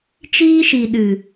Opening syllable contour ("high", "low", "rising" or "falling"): high